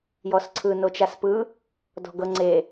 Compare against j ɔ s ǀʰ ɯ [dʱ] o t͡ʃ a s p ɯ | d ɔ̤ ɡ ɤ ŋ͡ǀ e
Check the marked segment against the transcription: incorrect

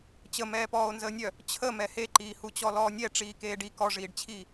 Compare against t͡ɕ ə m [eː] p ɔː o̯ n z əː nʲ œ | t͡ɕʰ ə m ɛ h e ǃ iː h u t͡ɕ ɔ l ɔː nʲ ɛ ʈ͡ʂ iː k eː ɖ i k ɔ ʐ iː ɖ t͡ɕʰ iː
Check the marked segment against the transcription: incorrect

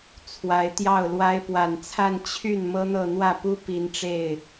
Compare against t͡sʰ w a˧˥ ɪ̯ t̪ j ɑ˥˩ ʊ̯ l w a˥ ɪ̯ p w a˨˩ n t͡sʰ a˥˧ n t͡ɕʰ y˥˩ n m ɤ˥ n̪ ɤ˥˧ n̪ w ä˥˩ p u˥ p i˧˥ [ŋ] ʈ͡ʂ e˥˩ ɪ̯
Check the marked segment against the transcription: incorrect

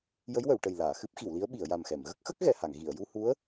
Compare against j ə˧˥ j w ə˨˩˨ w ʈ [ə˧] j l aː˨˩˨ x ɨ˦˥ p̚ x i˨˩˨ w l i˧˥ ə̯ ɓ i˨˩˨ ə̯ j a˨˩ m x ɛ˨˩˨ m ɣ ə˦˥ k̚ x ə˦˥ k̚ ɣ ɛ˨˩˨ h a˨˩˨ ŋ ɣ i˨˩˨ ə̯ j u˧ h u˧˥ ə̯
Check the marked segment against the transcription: incorrect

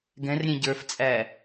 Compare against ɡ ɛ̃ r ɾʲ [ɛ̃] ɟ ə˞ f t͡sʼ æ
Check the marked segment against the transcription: correct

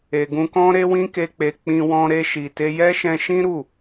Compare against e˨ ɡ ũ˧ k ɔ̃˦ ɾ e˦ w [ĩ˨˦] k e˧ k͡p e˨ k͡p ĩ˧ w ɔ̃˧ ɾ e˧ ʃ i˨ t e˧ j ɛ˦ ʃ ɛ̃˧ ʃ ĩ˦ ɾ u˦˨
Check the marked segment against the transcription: incorrect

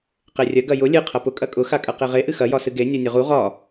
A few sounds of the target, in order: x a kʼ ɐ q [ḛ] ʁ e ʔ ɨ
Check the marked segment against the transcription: incorrect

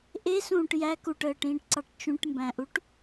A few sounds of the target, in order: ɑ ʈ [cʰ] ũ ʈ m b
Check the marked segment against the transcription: incorrect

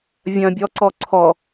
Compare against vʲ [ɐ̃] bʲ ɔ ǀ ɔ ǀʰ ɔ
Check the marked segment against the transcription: correct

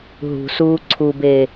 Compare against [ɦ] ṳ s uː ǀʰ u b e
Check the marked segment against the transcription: correct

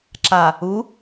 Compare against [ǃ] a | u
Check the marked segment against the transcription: incorrect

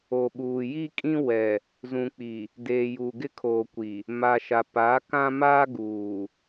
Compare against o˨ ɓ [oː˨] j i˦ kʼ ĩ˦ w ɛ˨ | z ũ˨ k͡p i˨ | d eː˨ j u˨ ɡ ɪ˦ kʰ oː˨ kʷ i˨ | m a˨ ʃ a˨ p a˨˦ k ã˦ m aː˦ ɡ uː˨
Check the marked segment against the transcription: incorrect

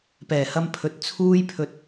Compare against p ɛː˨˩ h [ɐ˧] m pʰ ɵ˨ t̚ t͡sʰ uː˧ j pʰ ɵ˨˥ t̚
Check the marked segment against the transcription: correct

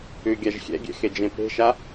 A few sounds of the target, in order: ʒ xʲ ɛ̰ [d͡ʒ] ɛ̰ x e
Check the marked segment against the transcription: incorrect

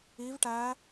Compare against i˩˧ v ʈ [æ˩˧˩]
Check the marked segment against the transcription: incorrect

